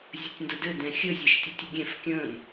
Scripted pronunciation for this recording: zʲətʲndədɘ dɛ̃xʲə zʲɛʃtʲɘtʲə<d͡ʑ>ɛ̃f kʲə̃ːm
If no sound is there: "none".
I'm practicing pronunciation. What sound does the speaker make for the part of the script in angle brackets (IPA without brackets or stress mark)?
ɡʲ